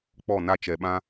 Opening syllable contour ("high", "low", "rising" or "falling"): falling